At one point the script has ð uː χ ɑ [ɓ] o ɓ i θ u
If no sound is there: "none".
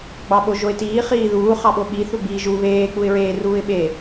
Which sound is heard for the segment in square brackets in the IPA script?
ɓ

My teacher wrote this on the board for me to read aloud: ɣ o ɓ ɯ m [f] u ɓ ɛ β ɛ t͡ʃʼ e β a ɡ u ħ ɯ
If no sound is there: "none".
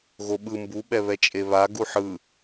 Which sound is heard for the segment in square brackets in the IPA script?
b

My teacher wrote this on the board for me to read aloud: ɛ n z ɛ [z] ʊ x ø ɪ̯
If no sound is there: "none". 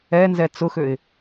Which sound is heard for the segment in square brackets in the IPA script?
t͡s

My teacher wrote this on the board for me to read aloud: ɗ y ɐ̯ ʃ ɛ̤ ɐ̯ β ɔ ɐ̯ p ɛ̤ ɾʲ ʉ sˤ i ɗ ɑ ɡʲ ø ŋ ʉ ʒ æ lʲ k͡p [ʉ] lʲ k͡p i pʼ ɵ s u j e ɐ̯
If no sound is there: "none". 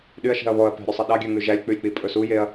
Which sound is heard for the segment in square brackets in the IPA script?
ʉ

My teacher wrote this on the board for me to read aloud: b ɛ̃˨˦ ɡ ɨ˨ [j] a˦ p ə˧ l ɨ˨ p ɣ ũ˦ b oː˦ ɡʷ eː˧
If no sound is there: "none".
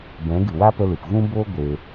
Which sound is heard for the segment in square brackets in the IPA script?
w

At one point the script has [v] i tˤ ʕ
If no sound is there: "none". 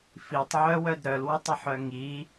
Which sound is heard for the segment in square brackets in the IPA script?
f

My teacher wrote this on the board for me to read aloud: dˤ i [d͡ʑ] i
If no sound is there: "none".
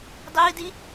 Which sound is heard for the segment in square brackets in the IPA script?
d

